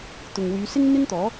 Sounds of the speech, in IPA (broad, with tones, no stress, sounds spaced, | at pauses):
t̪ ʊ˨ ŋ w yː˨˧ s ɪ˥ ŋ n̪ ɪ˥ ŋ t̪ ɔː˨˥